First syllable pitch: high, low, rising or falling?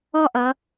high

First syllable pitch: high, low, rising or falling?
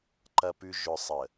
low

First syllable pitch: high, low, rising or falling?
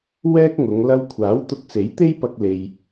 high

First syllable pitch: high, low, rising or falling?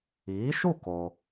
rising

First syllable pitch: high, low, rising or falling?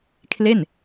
falling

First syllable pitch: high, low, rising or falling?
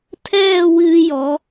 falling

